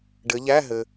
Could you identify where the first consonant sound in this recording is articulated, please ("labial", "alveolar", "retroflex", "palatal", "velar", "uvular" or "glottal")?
retroflex